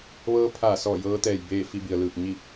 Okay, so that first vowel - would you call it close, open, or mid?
mid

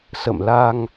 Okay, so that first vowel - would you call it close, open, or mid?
mid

